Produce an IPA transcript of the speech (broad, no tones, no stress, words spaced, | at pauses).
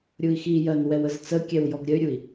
ɾʲui̯xijɜn wɛwəzt͡səkʲɛw jɔɡɾʲəy̯ɾʲui̯